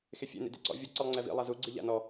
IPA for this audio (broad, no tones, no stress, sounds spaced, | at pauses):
x e fʲ ḛ n ḭ d ḛ ǀ ɔ̰ vʲ o ǀ ɯ lˠ ŋ͡ǀ ɛ v ḭ lˠ a z u ɡ͡ǀ i ʎ a̰ n ɔ